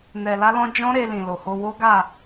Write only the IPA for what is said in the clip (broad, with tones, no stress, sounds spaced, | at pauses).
n ɛ˧ l a˦ l ɔ̃˦ d͡ʒ ɔ̃˦ ɾ e˧ l ĩ˨ l o˨ h o˧ w o˦ ɡ a˦˨